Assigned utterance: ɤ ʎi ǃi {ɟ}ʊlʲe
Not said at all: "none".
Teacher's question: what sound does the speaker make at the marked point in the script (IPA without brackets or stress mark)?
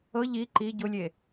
ɟ